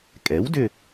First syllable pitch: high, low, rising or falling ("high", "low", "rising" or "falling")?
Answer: rising